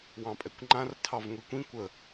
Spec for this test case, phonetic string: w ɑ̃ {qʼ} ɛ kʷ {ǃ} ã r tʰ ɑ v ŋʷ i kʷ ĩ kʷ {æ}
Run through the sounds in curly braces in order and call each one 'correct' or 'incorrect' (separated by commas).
incorrect, incorrect, incorrect